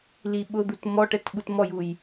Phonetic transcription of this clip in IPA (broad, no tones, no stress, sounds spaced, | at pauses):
l i ɓ ʊ d̪ u t m ɔ ʈ ɛ t ɓ u t m ɔ j u j